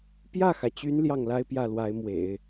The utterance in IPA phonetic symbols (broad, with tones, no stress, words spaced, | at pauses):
pjä˥˩xä˩t͡ɕy˧˥n ljɑ˥˩ŋla˥ɪ̯ pjä˥˩lwa˧˥ɪ̯mwḛ˨˩˦ɪ̯